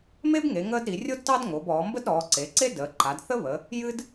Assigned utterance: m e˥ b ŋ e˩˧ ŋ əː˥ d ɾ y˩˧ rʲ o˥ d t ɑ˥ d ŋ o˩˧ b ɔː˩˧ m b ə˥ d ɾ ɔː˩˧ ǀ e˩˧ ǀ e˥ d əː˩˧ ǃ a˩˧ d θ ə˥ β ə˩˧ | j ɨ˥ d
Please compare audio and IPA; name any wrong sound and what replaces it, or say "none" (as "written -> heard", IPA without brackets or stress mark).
y˩˧ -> i˩˧